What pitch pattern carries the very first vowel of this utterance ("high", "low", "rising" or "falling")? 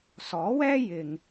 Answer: rising